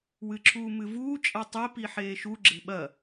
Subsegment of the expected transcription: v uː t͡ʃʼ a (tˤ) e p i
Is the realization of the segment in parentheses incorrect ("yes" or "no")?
no